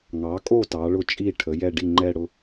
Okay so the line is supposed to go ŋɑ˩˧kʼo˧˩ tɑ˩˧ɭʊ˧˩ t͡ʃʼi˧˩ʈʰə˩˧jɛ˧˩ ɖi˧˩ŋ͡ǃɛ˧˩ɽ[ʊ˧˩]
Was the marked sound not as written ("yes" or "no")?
no